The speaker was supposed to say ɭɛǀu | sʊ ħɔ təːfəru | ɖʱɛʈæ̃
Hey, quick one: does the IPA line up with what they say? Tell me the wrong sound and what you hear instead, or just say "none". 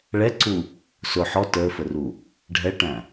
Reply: none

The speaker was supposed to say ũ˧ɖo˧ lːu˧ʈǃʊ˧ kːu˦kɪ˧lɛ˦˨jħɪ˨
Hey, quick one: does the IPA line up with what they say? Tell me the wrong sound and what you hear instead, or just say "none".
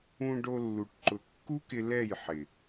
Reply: none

